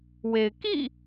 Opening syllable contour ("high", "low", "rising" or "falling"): low